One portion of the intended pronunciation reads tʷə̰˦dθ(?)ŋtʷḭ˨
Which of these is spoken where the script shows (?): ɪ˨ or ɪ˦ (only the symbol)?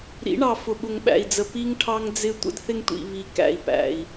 ɪ˦